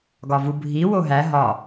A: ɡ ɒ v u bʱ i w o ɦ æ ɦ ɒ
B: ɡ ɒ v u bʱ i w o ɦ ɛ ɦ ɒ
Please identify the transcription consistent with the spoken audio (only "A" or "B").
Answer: A